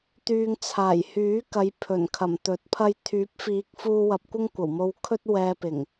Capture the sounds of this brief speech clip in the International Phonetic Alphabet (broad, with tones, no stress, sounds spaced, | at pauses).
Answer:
t̪ yː˨ ŋ t͡sʰ aː˨˩ j h yː˨˥ k ɐ˨˧ j pʰ ɵ˨˩ n kʰ ɐ˨˩ m t̪ ɵ˨˥ t̚ pʰ ɐ˥ j t̪ʰ yː˨˥ p̚ f iː˨˥ k̚ f uː˧ w ɐ˨ p̚ kʷ ɪ˥ ŋ kʷ ɐ˨˩ w m o˧ w kʰ ɵ˥ t̚ w ɛː˧ p ɪ˨˩ ŋ